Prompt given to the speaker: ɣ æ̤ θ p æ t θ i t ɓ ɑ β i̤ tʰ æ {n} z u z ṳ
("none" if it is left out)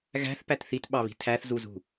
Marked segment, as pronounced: θ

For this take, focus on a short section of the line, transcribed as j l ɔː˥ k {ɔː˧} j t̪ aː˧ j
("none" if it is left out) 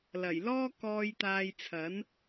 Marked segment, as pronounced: ɔː˧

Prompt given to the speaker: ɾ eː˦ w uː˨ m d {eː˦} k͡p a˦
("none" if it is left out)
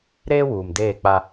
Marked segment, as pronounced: eː˦˨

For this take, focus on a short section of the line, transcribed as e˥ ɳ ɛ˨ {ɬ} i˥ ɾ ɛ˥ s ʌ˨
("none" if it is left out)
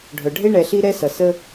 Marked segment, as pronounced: ɬ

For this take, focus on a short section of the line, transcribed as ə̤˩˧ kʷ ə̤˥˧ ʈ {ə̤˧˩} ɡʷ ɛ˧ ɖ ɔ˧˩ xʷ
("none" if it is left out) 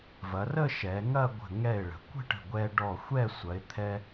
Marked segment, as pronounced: ə̤˧˩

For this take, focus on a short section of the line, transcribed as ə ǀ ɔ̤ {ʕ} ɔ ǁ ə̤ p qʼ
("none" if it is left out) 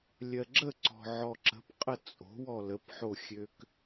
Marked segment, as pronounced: ʕ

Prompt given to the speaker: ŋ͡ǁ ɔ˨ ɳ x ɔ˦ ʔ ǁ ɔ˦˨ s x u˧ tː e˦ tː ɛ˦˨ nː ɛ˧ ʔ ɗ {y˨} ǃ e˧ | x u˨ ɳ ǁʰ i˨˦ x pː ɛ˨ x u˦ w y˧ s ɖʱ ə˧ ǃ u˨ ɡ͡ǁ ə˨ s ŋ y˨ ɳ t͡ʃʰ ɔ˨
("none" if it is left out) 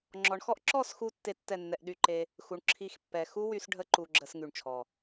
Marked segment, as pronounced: y˧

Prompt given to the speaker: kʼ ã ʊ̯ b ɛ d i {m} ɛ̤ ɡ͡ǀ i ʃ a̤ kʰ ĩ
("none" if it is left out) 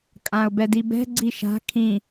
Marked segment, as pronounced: b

